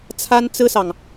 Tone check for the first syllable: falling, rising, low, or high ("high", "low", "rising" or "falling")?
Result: high